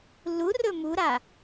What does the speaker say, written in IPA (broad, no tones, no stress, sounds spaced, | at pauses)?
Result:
l u r ɵ m u ɾ a